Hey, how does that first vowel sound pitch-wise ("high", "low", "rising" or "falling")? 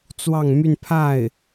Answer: falling